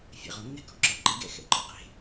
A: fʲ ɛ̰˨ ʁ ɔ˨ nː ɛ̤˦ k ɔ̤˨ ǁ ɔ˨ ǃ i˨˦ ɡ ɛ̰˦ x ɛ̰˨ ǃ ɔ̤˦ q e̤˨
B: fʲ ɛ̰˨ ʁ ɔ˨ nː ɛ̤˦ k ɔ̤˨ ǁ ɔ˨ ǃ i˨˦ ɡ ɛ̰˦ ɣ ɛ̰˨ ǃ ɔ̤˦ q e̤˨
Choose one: A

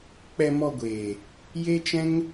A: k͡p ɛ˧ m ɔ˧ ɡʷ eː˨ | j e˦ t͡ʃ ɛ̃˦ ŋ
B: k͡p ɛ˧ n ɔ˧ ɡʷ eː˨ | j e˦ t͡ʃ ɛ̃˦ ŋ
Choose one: A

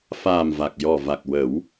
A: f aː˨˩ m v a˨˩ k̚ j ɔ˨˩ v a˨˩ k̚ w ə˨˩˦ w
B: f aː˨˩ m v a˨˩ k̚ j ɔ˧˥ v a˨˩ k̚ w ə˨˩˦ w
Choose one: A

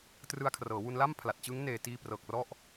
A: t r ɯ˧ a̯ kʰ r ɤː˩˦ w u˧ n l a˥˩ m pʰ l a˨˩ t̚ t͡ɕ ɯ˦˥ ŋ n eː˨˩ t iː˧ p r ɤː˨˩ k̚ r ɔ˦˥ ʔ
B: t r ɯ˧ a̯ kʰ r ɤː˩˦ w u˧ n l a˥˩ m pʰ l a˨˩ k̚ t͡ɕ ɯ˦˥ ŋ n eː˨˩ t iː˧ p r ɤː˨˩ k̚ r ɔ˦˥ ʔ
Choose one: A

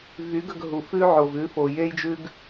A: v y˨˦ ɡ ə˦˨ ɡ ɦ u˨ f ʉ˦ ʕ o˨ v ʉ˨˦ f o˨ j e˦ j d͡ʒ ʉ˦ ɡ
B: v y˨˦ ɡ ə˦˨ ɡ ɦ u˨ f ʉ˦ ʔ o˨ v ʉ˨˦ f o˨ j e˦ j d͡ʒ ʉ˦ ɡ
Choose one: A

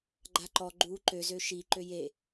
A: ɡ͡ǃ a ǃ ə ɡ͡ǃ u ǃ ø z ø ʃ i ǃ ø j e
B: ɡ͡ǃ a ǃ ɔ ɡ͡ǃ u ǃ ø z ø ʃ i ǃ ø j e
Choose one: B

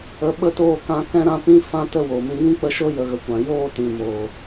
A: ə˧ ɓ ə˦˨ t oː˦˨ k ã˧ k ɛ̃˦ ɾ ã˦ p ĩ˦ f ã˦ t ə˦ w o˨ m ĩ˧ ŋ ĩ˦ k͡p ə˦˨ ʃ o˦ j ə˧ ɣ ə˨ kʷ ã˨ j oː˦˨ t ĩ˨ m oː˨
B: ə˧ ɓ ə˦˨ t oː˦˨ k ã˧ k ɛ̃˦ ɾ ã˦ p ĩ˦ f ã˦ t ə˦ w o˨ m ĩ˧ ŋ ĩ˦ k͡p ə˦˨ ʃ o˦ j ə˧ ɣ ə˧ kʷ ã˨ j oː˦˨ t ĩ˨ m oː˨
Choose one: B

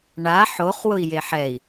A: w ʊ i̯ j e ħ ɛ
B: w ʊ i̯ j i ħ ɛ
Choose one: A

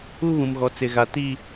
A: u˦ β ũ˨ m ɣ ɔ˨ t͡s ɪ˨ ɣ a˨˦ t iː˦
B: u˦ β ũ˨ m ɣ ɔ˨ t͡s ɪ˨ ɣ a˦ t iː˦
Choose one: A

